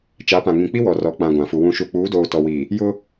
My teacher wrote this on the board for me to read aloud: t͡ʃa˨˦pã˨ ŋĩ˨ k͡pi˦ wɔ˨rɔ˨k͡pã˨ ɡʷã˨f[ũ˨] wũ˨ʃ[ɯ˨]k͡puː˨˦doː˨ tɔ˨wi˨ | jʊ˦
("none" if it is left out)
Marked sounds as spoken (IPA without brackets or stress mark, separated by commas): u˨, u˨